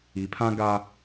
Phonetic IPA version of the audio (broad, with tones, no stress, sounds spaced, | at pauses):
i˨ pʰ ã˦ ɡ a˦